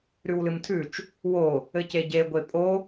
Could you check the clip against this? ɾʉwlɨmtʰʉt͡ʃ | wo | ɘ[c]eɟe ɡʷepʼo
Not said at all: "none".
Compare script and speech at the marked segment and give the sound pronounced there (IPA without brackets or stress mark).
c